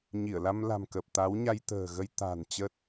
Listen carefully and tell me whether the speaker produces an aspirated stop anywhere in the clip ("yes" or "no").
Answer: no